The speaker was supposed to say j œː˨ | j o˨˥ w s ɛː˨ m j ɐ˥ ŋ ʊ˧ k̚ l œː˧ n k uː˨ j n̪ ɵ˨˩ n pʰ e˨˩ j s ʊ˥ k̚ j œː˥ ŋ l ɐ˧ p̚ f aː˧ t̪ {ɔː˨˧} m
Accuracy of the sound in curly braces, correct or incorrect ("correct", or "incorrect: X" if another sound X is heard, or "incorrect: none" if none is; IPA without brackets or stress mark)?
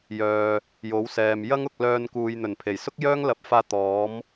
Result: incorrect: ɔː˨˥